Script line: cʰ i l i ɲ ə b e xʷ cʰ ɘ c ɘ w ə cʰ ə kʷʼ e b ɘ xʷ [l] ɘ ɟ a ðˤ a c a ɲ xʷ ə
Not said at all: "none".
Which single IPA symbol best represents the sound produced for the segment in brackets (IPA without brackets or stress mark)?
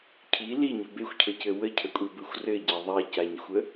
r